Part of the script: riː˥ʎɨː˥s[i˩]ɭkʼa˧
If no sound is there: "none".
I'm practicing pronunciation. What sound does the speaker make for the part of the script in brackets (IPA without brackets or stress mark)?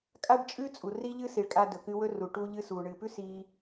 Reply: i˩